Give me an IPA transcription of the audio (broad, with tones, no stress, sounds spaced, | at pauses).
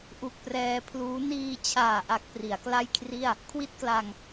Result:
ʔ u˨˩ k̚ p r ɛː˧ pʰ l uː˦˥ n iː˧ t͡ɕʰ aː˨˩ ʔ a˨˩ k̚ p r i˩˦ a̯ k l a˥˩ j kʰ r i˥˩ a̯ | kʰ w i˥˩ t̚ k l a˧ ŋ